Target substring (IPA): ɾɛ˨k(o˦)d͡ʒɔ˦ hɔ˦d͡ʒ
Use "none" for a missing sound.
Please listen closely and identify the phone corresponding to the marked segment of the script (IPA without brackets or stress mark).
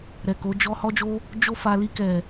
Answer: o˨˦